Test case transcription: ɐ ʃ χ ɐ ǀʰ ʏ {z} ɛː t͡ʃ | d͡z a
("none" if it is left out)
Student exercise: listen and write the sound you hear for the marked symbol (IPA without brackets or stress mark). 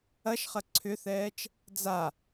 θ